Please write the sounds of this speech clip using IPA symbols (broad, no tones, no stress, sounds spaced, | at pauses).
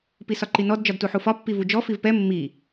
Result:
p i s ɒ ǃ i n ɔ d d͡ʒ ɒ d t u ħ u f ɒ pː i v u d͡ʒ ɔ f i v p ɛ mː i